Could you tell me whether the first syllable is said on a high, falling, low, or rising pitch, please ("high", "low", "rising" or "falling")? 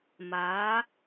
rising